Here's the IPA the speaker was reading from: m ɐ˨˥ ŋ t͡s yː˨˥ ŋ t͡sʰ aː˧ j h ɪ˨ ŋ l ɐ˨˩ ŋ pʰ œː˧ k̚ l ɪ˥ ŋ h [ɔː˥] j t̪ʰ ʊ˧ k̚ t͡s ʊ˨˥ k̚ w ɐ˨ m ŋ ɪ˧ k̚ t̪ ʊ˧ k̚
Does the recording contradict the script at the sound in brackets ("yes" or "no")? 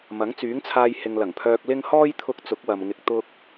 no